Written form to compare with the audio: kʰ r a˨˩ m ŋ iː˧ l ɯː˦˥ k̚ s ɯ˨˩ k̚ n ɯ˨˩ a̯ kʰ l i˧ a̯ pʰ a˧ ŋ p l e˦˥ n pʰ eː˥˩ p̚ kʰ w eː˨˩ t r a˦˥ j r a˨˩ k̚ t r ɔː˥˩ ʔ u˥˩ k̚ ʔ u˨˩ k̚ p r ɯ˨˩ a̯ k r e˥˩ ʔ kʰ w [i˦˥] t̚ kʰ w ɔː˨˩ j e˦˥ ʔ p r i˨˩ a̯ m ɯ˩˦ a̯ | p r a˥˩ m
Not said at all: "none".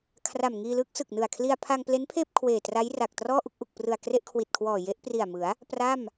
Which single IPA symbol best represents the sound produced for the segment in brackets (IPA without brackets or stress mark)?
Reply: i˨˩